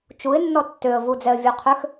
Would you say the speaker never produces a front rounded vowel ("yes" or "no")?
no